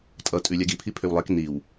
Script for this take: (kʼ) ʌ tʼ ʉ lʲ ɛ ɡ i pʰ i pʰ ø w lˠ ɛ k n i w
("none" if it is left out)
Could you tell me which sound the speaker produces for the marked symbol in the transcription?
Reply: tʼ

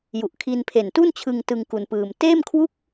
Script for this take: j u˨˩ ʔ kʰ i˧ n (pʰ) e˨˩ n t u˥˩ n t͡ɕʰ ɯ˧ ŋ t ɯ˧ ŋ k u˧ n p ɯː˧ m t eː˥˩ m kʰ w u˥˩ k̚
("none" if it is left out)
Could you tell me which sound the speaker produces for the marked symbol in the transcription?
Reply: pʰ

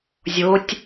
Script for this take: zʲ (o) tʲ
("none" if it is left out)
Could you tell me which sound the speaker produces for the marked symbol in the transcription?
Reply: o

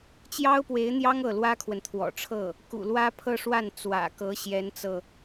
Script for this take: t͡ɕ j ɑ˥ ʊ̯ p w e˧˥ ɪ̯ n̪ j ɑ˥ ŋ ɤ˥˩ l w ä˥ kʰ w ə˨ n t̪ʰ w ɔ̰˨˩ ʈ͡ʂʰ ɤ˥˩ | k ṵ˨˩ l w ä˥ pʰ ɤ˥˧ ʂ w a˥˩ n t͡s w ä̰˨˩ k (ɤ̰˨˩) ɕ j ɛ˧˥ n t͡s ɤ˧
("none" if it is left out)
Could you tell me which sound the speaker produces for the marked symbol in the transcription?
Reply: ɤ˧˥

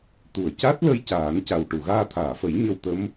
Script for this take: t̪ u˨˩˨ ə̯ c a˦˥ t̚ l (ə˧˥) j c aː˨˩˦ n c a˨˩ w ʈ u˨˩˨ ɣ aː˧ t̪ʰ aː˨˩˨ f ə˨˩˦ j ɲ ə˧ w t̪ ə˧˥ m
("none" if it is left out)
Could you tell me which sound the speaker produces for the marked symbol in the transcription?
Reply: ə˧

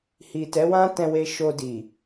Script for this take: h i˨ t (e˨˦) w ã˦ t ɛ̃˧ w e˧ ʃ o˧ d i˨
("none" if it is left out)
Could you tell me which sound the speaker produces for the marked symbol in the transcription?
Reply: ɛ˨˦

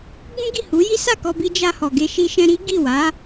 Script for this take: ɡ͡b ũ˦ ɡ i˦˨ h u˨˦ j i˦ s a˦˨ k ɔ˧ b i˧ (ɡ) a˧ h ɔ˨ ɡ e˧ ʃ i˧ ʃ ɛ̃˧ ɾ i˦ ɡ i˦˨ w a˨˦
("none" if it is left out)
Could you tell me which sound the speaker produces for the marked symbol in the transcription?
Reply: d͡ʒ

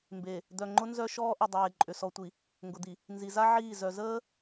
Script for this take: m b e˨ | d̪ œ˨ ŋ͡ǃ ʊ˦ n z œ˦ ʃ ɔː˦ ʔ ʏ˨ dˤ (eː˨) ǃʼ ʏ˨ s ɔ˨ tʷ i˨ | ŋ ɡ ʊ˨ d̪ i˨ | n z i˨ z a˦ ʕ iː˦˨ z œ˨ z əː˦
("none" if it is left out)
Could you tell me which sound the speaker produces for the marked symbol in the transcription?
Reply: eː˨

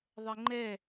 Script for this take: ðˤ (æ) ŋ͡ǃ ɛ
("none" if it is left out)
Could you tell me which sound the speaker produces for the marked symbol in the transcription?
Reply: ɛ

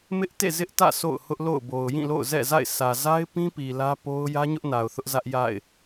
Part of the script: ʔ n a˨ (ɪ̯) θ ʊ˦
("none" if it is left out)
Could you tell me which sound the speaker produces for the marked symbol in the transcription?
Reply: ʊ̯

